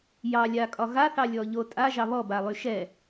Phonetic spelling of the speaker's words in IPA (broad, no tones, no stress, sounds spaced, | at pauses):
j ɑ lʲ a kʼ ɒ ɣ a θ ɑ lʲ ɔ ʎ o tʼ a ʒ ɑ β ɔ b a lˠ y ʃ ɛ